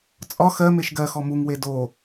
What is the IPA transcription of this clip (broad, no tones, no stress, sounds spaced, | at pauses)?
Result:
t͡sʼ ɒ x ɜ m e ʃ ɡ ɜ x ɔ m u ŋ w e d o